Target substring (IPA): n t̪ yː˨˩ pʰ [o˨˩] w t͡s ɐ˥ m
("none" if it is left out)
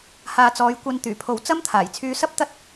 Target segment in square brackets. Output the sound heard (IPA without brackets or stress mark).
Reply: o˨